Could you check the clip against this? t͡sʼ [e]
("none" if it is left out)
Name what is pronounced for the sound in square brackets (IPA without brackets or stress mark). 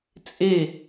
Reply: e